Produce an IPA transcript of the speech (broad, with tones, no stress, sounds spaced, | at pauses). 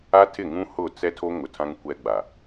a˦ tʰ ɪ˦˨ ŋ ũ˦ h ʊ˦˨ t͡s ɛ˦ tʰ o˦ ŋ ʊ˨ tʰ ã˦ ŋ kʷ ɛ˦ ɡ͡b a˨